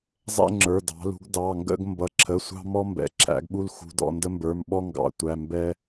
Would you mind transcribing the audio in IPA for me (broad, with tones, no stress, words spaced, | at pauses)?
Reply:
zˤɛ̰˦ŋ͡ǁə˞˩˧˩ dɑ̤˩˧lṳ˩˧ɡ dɑ˩˧˩ŋɡə̰˦ɡ mbʌ˩˧˩ǁʰə˩˧˩sʷɑ̤˦ mɔ˦mbɛ̰˩˧ ǁʰæ̰˩˧ɡɓu˦lxṳ˩˧˩dɔ̰˩˧˩ ndə˦mbə˞˩˧˩mɓɔ˦ ŋɡɑ̰˩˧tʷæ˩˧˩ mbɛ˦